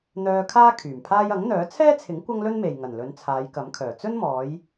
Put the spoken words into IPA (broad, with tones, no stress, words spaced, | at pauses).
n̪œː˧kʰaː˥ kʰyː˨˩mpʰaː˥j ɐ˨˥ŋn̪œː˨˥ t͡sʰɛː˥t͡sʰɪ˨˥ŋ kʷɐ˥ŋlɵ˥nme˨j ŋɐ˨˩nlɵ˨˧n t͡sʰaː˨˧jkɐ˨˥mkʰœː˨˩ t͡sɵ˥nmɔː˨˧j